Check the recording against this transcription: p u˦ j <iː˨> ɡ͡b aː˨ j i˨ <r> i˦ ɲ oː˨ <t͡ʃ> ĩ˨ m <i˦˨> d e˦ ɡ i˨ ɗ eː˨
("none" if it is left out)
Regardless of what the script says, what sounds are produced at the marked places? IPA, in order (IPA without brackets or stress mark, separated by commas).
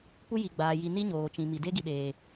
i˨, n, t͡ʃ, i˨